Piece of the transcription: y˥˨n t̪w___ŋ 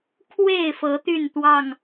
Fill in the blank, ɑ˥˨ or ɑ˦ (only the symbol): ɑ˥˨